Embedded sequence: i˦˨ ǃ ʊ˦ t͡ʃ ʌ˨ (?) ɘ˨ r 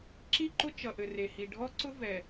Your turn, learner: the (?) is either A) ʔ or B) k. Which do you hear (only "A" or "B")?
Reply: A